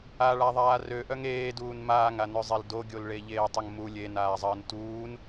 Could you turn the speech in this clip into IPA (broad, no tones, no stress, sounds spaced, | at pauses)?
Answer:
a ɭ a ðˤ aː r ø ʔ œ ŋ eː d uː n m aː ŋ a n ø zˤ e l d o ɡʲ o l ɭ e ʎ eː tˤ ʊ ŋ m u lʲ e n aː zˤ əː n t uː n